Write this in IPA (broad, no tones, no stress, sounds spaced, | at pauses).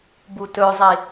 b u t ɵ zˤ i